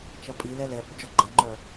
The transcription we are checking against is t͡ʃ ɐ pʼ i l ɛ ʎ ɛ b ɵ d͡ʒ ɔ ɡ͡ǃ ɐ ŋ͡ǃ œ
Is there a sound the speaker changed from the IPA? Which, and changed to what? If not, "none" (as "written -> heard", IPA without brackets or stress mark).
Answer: ʎ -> l